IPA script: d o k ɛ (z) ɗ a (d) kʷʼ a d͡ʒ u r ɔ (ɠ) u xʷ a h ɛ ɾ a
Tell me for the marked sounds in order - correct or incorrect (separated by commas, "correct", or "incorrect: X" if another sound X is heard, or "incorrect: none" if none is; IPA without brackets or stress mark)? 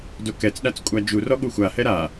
incorrect: t͡s, incorrect: t͡s, correct